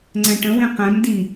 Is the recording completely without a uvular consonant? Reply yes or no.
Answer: no